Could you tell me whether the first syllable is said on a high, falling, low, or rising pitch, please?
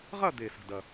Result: falling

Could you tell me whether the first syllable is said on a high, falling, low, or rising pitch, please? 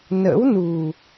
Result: rising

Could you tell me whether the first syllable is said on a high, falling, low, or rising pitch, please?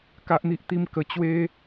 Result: high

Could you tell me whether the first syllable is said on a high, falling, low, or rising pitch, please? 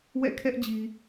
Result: falling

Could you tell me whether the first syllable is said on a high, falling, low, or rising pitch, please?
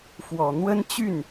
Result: low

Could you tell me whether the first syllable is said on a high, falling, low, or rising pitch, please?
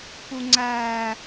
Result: low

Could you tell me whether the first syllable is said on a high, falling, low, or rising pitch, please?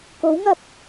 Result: rising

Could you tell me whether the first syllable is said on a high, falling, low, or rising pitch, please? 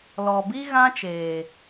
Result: low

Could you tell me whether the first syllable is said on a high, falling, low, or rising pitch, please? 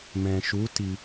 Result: low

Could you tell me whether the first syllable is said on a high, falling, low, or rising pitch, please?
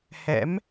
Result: rising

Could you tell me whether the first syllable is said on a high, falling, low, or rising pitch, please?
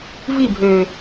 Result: falling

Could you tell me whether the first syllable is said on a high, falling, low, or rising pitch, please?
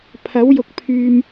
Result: rising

